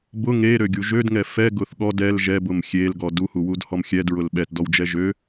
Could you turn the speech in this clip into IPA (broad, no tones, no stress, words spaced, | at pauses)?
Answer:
bʊ ŋeɾøɡʲu ʒødŋɛ fɛɡʊθ ɠɔd ɛl ʒɛbʊm xʲelɡɔ duhuwudhɔm xʲɛdɹʊl ɓɛtdɔwd͡ʒɛ ʒø